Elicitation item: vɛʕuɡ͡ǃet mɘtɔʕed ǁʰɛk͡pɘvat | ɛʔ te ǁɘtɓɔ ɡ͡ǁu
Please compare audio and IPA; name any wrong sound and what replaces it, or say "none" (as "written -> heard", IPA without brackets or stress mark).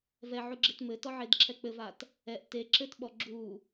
ɡ͡ǃ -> ɡ͡ǁ